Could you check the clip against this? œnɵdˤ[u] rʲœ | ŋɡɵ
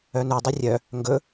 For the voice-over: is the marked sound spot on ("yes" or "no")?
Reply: yes